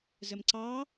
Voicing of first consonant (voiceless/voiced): voiced